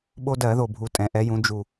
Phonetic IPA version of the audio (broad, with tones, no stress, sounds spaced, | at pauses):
ɓ o˦ d ɜ˧˩˧ ð o˨˩ bʱ u˨˩ tʼ ɛ̃˩˧ ʔ ɛ˩˧ j ũ˩˧ d͡ʒ u˨˩